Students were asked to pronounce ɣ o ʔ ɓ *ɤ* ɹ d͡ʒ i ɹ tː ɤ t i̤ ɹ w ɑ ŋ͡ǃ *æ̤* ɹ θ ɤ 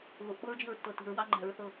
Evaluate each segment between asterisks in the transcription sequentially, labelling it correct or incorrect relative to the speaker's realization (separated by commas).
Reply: correct, correct